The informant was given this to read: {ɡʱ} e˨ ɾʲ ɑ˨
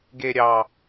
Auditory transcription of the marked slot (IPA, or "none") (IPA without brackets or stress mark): ɡ